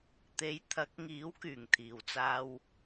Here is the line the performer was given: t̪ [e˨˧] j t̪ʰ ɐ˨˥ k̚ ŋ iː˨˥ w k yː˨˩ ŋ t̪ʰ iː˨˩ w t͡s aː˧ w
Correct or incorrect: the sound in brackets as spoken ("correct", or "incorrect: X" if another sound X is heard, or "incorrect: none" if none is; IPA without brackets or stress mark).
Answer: correct